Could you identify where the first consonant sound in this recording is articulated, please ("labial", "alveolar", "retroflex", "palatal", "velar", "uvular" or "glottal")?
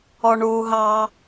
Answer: retroflex